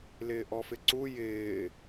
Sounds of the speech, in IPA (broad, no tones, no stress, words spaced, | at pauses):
lɪːʔɔfɪǀu jɪː